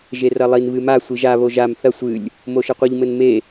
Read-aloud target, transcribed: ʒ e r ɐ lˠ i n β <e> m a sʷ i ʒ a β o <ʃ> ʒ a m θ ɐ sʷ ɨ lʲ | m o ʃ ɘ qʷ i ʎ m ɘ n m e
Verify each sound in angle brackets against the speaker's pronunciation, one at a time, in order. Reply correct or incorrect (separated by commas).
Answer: incorrect, incorrect